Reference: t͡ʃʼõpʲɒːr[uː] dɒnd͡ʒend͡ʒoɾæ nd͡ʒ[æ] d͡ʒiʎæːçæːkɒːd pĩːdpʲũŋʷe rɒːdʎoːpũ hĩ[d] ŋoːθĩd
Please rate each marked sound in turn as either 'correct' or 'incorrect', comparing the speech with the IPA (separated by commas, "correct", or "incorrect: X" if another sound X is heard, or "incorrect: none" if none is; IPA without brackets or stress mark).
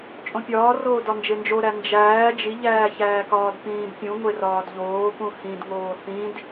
incorrect: oː, incorrect: æː, correct